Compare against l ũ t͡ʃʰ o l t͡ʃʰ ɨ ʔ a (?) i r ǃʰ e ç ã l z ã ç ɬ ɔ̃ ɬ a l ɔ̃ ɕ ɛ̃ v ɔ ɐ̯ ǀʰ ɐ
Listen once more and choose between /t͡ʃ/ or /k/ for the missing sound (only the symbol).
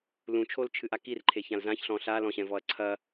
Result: k